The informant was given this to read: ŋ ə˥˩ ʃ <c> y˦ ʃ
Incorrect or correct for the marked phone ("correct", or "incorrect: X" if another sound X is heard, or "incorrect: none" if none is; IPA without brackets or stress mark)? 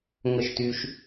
incorrect: t